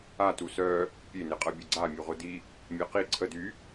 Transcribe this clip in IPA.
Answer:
a t u s œ | pʲ e n e qʼ ɤ bʲ ə ɡ͡ǀ a mʲ u ʁʷ ə d i | mʲ a q i ǀʰ ə d y

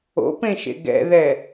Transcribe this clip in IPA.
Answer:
o̰ p ẽ ʃ ḛ ɡ ɛ̰ ð ɛ

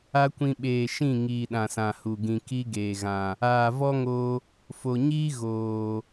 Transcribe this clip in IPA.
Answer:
a˦ kʷ ĩ˧ ɓ eː˨ ʃ ĩ˦˨ ŋ iː˨ ɗ ã˨ s ã˨ h u˨ ɡ ĩ˧ k i˦ ɡ eː˨ ɣ ã˨ | aː˨ v ɔ˦ ŋ o˧ | f o˨ ɲ iː˦ ɣ oː˨

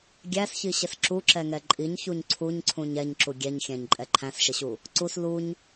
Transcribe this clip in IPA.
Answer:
ɡʲ æ s ç i ɕ ɪ s ǁ u ǁ ɛ ŋ ɛ ǃʼ i ɲ ç u ɲ ǀʰ u ɲ ǀʰ ũ ɲ ɛ ɲ ǁ u ɡʲ ɛ ɲ xʲ æ̃ ɲ ǃʼ ɛ ǃʰ æ̃ s ʃ ɪ ɕ u | ǀ u s l u ɲ

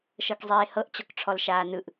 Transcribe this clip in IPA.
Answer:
ʃ ɤ k zˤ eː h ɤ ʔ t͡ɕ ɔ k ʈ͡ʂʰ ɔ l ʃ aː n ɯ ʔ

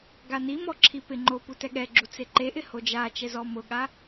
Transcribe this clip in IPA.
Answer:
ɡ a n i m ɔ ǁʰ i p ɪ ŋ͡ǃ o p u t ɛ ɠ ɛ ɡ͡ǁ u t͡s e ǃ e ʔ ɪ h o d͡ʒ a t͡ʃ ɛ z ɔ m ʊ ɠ a

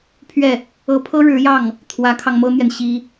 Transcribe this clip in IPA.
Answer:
pʰ ɥ ɛ˥˩ | ɤ˧˥ pʰ ɤ˥ ɻ ɻ̩˧˥ j ɑ˥˩ ŋ | t̪ʰ w ä˧˥ kʰ ɑ˧ ŋ m ɤ˥ n̪ j ɛ˨ n ɕ i˥

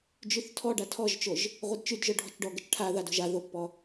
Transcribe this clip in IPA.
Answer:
d͡ʒ y θ tʰ ɔ ɖ a tʰ ɔ ʒ t͡ʃ o ʒ | ʁʷ e d t͡ʃ y d ʒ œ ɖʱ ɔ̤ t͡ʃ ɖ ɔ ɡ ə t͡ʃ ʈʰ a ð a d o̤ ʒ a ð o pː ɔ

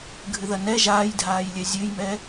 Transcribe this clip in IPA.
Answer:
ɡʱ ɨ ð ɐ n ɛ ʒ aː j dʱ aː j lʲ ɛ zʲ ɨ j m ɛ

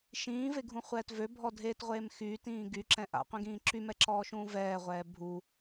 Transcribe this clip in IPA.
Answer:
ʃ ĩː v e ɡʱ ũ χʷ ɛː t v ø bʱ ɔ dʱ eː t ʁʷ eː m x yː t ĩː ɡ y ǁ ɛ̃ ʔ a̰ qʷ ĩ ɡ ĩː ǁ y m ɛ ǁ ɔː ʃ ũː v ɛː ʁʷ ɛː bʱ u

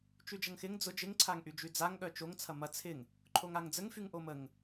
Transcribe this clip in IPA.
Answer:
t͡ʃ y d͡ʒ ɐ ŋ x ɪ ŋ d͡z ʊ d͡ʒ ɪ ŋ ǀʰ a ŋ ʔ y d͡ʒ y d͡z a ŋ ɠ œ t͡ʃ o ŋ t͡sʰ ɐ m ɐ t͡sʰ ɪ ŋ | ǃʰ o ŋ a ŋ d͡z ə ŋ f y ŋ ʔ o m ə ŋ

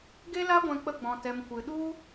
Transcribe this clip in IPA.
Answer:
ɡ e˦ l a˦ ɡʷ ɛ̃˧ k͡p ə˧ ɡ͡b ɔ̃˨ t ɛ˨ m kʷ ɨ˨ ɗ u˦

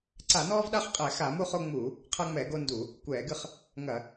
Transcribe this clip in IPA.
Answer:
ǀ a˧˩˧ n ɔː˦ v ɗ a˦ χ qʼ ɛ˧˩˧ x a˧˩˧ m u˦ χ o˦ ŋ͡m uː˧˩˧ | qʰ ɐ˦ ŋ͡m ɛ˧˩˧ ɡ o˦ n d u˧˩˧ | kʷ ɛː˧˩˧ ɡ ɨ˦ χ | ŋ ɐ˧˩˧

